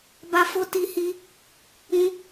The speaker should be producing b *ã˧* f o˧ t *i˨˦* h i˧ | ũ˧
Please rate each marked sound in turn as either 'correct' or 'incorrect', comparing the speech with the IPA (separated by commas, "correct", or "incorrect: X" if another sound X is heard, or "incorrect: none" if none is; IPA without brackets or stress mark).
incorrect: a˧, incorrect: i˧